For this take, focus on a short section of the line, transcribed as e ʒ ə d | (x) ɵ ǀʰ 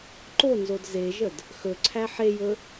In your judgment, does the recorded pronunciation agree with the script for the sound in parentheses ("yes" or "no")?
yes